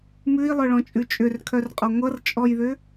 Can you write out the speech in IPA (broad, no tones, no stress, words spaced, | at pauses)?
mʉi̯lˠœɭɔ̃t͡ʃʼʉ t͡ʃʼʏrkʰœrqʼɔ ŋʷʌrt͡ʃʼɔjðʏ